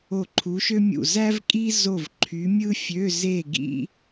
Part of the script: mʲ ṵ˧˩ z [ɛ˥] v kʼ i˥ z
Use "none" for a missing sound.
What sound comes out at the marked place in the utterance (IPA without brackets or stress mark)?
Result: æ˥